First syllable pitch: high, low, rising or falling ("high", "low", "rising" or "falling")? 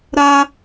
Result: high